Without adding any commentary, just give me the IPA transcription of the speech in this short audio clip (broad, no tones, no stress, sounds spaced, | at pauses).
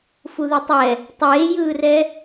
f u ð ɛ tˤ ɛ | tˤ eː j ɯː r ɛ